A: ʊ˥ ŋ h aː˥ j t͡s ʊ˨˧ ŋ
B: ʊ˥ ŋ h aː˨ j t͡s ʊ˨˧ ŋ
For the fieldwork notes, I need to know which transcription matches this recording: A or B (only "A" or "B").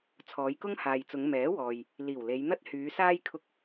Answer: B